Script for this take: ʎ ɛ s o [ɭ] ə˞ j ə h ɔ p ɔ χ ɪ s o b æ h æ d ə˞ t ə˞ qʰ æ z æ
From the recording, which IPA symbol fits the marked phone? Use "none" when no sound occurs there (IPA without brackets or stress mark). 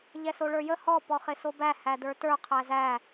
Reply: ɭ